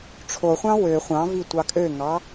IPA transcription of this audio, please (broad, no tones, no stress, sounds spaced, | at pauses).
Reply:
ʈ͡ʂʰ o χʷ ɑ̃ w ø χʷ ɑ̃ v i tʷ ɑ kʼ ø ŋ ɑ